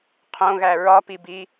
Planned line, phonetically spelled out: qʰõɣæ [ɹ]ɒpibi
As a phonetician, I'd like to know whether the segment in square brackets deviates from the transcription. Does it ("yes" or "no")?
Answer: no